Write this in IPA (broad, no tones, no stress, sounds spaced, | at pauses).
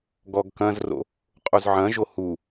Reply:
ɡ ɔ ɡ k ɐ̃ z r o̰ | qʼ u z ʕ ɐ̃ ʒ o h u